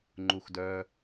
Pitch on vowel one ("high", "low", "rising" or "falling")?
low